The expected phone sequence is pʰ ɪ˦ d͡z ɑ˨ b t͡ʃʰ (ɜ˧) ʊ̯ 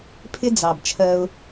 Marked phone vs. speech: correct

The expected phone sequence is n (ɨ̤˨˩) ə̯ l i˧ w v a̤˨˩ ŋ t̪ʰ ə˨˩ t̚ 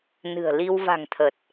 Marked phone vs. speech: correct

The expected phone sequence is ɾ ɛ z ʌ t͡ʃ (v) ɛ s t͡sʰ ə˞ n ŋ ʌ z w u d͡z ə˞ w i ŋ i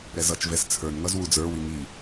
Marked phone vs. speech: correct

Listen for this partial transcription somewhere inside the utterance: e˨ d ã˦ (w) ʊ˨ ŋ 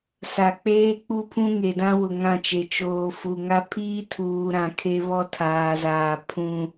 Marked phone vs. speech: correct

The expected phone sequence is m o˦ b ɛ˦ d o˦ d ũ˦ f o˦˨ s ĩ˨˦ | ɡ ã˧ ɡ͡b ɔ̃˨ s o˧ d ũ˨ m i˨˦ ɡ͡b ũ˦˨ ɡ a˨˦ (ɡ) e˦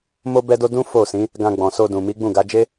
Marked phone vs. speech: incorrect: d͡ʒ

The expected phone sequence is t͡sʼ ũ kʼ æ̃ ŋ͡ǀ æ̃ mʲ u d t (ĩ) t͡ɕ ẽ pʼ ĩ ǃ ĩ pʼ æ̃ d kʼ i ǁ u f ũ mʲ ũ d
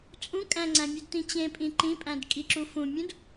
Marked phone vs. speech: correct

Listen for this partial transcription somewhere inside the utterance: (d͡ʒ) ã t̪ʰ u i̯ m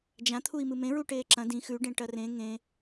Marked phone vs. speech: correct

